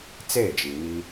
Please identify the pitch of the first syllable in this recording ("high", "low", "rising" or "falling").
falling